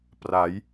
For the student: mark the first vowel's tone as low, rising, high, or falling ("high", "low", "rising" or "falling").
rising